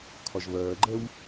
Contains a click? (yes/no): yes